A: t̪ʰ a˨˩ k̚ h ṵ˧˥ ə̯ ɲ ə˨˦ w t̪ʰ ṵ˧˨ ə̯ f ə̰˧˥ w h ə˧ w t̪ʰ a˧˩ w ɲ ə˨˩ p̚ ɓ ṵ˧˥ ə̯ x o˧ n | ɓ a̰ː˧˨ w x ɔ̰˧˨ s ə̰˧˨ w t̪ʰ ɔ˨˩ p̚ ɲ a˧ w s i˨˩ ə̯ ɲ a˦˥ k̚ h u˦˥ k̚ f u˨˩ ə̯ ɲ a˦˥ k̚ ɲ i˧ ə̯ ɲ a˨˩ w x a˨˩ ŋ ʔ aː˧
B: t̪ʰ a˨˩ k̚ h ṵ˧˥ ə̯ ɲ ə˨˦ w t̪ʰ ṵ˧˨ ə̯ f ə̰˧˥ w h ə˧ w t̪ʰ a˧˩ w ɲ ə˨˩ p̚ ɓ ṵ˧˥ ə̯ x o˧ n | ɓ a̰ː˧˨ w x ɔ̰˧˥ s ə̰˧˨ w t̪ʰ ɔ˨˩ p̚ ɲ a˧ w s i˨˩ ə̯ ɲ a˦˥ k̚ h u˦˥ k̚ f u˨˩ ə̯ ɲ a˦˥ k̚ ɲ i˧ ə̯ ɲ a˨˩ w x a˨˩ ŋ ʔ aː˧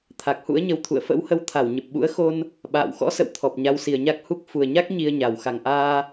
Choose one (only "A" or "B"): B